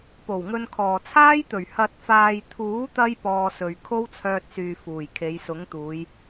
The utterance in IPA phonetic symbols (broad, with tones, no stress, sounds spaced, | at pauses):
p o˨˩ w ŋ ɵ˧ n kʰ ɔː˨ t͡sʰ aː˥ j t̪ ɵ˨˩ ɥ h ɐ˨ t̚ f aː˨ j t̪ʰ uː˨˥ t̪ ɐ˧ j p ɔː˧ s ɵ˨ ɥ kʰ o˥ w t͡sʰ œː˧ t̚ s yː˨ f uː˨˩ j kʰ e˨˧ j s ʊ˨˥ ŋ t̪ uː˨˧ j